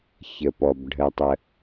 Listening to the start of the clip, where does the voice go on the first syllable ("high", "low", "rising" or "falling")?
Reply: low